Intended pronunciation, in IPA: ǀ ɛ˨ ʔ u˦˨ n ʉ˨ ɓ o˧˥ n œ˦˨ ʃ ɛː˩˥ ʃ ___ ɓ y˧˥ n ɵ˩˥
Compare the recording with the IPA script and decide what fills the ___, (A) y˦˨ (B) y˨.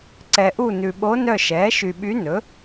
B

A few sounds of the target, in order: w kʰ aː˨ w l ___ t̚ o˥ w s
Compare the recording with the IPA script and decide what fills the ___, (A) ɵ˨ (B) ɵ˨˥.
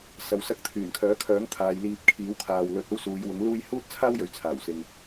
A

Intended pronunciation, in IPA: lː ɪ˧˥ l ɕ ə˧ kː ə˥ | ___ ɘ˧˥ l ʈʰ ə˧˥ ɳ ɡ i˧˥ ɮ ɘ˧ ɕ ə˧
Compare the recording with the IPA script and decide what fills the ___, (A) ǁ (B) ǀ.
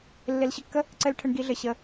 B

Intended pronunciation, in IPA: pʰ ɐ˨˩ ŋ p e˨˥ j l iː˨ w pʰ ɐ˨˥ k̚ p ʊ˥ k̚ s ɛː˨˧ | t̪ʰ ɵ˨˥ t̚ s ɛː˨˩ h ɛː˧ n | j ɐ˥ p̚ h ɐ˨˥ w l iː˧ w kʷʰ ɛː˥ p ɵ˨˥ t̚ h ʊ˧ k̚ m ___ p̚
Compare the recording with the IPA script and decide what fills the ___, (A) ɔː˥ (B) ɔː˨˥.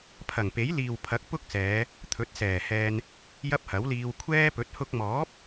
B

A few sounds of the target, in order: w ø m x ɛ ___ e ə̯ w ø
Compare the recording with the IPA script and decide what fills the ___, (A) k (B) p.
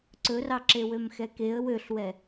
A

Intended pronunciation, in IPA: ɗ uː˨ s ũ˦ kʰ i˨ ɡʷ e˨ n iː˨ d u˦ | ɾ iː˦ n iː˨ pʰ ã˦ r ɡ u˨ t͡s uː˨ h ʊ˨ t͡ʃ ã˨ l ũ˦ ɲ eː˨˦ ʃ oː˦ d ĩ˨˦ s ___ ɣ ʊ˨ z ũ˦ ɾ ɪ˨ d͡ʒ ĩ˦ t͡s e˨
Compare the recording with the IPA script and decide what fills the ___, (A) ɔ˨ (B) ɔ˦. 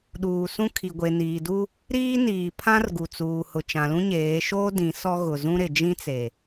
B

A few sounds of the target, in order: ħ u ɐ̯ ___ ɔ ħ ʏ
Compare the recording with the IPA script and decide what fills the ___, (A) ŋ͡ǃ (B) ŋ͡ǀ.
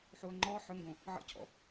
A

